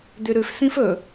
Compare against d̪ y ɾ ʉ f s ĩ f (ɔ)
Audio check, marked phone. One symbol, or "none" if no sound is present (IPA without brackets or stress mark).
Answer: ɵ